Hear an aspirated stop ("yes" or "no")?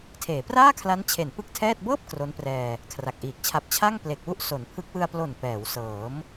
yes